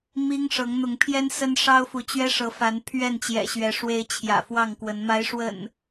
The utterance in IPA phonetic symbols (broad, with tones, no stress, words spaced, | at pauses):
mi˦ŋ ʂɤ˨˦ŋn̪ʊ˨˦ŋpʰjɛ˦n sə˦n ʂɑ˦ʊ̯fu˨˦ t͡ɕɥɛ˦ʂɤ˨˦fa˨˦n pʰɥɛ˥˨nt͡ɕjɛ̰˨˩ɕɥɛ˨˦ ʂwe˨˦ɪ̯ t͡ɕʰjä̰˨˩fwɑ˥˨ŋkwə˨˦n ma˨˦ɪ̯ʂwə̰˨˩n